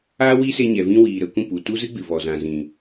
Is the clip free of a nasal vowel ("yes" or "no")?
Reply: no